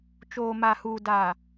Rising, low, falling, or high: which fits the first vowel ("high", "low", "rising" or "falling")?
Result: low